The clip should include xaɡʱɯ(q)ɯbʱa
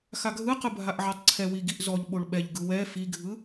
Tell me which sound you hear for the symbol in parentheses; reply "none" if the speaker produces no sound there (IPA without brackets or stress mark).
q